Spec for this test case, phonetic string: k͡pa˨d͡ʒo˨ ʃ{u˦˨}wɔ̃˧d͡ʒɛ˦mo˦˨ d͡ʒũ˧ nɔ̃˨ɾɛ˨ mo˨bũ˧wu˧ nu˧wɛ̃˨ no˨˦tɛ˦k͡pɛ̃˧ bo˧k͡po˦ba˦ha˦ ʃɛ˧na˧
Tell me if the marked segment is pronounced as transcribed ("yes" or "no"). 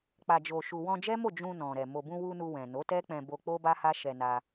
no